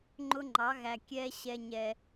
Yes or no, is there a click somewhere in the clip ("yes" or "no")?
yes